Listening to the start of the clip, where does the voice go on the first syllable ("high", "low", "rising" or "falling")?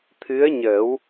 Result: rising